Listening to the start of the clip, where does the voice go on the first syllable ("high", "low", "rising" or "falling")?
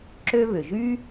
high